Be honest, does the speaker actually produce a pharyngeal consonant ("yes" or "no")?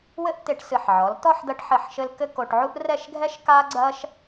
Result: yes